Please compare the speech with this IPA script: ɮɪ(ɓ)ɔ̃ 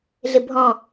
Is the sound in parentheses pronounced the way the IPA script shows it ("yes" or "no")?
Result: no